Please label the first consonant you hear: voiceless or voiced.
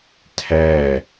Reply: voiceless